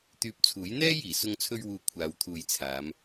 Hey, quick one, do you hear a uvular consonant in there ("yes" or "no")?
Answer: no